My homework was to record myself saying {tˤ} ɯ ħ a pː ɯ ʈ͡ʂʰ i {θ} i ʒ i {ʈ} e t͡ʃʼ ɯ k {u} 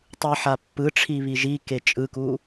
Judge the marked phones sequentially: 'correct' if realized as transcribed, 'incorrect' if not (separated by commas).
correct, incorrect, incorrect, correct